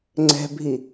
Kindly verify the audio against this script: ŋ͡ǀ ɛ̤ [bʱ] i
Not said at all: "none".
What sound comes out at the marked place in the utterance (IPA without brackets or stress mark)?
bʱ